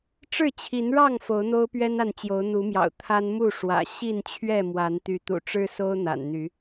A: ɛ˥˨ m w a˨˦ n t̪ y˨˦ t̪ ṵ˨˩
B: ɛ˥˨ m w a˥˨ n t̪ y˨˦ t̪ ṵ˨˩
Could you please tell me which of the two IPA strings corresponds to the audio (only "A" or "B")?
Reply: A